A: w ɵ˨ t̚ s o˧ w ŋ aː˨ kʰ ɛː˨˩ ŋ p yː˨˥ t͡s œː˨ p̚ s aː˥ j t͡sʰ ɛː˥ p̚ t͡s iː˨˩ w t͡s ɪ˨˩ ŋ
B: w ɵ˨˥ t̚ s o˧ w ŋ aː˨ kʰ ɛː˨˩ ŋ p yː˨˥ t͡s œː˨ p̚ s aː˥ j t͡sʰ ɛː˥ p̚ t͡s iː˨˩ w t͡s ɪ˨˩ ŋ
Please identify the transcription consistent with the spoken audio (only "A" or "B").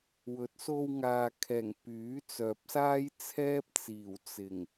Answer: B